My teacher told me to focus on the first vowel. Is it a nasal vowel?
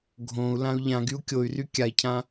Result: yes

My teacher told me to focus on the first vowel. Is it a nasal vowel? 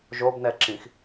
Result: no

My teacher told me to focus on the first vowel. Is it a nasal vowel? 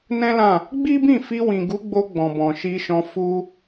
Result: yes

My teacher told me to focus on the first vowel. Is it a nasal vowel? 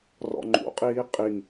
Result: no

